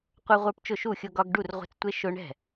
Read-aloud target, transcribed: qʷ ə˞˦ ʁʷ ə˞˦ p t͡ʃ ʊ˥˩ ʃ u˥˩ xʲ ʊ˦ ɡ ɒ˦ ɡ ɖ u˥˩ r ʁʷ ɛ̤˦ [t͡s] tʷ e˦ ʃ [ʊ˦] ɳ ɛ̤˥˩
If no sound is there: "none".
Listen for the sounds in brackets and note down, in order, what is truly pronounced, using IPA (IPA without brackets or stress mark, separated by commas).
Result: t͡s, ʊ˦